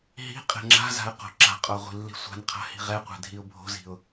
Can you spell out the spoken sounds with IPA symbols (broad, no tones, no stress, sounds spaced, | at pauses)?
ɦ i̤ qʼ ɛ̤ ŋ͡ǁ a̤ z a̤ ə̯ q o̤ ǁ a̤ qʼ o ʁʷ i̤ lː i̤ sʷ a̤ n qʰ a̤ h i̤ ʁ ɛ qʷ ɛ̤ dʱ i ʊ̯ bʱ o̤ z i̤ ʊ̯